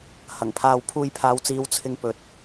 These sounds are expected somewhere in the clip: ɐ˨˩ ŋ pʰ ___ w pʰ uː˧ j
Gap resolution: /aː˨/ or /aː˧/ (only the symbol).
aː˧